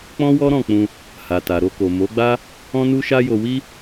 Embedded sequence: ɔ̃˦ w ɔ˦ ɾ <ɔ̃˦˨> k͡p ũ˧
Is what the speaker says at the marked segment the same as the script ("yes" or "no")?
yes